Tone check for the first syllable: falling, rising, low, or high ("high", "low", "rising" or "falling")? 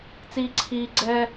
low